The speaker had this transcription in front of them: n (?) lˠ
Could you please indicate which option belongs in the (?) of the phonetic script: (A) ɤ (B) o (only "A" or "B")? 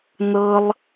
A